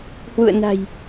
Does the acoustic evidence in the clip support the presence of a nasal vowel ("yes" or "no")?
no